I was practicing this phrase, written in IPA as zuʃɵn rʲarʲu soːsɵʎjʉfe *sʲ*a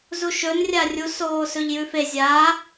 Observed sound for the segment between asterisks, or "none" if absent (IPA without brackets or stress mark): zʲ